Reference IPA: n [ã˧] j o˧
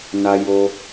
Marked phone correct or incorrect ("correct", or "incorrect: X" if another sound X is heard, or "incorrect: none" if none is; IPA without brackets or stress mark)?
incorrect: a˧